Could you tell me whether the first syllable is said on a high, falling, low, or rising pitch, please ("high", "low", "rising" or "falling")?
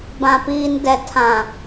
low